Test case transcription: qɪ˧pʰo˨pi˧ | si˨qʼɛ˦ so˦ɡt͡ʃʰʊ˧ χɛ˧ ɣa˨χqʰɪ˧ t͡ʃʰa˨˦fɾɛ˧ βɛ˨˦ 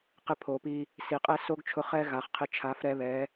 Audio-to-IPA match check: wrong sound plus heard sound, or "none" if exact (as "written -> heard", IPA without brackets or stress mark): none